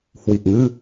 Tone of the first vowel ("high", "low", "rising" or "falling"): low